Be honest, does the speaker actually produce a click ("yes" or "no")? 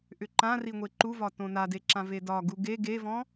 yes